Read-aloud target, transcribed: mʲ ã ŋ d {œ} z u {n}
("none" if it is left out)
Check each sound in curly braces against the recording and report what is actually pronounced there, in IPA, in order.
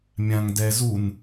ɛ, n

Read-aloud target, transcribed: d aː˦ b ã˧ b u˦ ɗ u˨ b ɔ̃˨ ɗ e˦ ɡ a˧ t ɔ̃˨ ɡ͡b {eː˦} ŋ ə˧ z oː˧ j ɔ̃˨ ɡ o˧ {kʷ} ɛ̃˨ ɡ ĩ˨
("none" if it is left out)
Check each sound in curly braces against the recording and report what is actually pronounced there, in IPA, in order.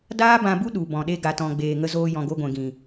eː˨, ɡʷ

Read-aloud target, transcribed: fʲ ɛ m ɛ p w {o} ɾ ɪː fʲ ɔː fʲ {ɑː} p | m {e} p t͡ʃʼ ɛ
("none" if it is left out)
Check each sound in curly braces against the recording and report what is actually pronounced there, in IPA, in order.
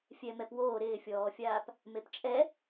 oː, aː, e

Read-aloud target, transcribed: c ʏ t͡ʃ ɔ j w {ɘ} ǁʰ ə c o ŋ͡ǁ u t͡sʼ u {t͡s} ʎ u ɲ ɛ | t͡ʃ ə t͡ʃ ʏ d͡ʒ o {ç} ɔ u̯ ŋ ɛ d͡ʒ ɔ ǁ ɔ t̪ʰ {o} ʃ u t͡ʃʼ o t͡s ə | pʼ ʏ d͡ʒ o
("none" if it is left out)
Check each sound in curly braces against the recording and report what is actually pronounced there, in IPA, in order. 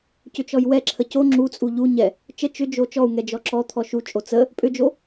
ɛ, none, t͡ʃ, ɔ

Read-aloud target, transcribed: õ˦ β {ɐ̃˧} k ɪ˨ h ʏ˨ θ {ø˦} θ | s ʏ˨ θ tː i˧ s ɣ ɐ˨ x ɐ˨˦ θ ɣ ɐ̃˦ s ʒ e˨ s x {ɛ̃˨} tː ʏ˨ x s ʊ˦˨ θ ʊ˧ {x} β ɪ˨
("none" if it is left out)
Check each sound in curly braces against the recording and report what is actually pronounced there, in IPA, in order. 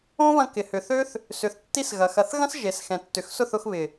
ɐ̃˧, ø˦, ɛ̃˨, x

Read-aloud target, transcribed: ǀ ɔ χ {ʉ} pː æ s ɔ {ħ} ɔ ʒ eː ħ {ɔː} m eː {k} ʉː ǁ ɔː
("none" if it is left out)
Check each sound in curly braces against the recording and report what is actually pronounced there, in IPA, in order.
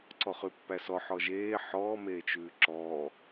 ʉ, ħ, ɔː, t͡ʃ

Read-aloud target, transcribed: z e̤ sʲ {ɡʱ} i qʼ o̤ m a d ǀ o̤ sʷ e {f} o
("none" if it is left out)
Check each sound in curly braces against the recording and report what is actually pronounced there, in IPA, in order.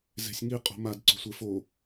ŋ, f

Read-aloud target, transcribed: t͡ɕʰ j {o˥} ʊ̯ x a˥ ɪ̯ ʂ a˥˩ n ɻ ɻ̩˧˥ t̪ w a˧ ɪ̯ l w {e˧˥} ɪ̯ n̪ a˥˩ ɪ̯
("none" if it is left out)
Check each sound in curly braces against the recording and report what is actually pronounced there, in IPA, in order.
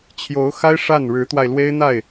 o˧˥, e˥

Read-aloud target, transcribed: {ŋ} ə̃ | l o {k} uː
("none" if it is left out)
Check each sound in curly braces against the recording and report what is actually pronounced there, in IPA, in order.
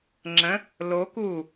ŋ͡ǁ, k

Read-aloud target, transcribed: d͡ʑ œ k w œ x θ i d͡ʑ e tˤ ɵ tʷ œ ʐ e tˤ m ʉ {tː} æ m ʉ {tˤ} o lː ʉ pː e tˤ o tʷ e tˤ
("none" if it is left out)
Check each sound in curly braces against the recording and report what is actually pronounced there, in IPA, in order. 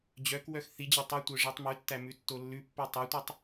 tː, tː

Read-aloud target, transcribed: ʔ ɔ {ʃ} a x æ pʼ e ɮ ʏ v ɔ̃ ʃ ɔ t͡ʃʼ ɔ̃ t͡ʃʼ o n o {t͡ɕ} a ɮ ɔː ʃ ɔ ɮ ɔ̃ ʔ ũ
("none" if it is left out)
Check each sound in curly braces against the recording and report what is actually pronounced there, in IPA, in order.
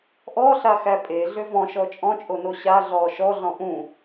ɬ, ɕ

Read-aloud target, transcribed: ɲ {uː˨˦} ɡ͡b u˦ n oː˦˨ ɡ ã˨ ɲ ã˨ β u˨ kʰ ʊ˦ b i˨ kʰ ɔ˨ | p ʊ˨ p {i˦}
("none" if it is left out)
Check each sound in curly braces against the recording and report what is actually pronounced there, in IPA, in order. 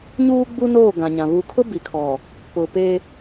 uː˦, e˦

